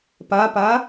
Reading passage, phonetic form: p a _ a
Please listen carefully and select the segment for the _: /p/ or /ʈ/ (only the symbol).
p